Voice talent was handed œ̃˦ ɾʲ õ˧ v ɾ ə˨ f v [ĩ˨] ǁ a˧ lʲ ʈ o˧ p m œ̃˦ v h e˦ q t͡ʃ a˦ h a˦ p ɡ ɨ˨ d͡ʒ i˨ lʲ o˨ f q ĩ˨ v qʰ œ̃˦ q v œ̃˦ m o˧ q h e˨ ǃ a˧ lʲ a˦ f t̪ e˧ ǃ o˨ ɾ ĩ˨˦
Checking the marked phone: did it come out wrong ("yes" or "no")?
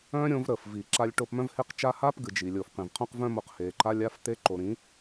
yes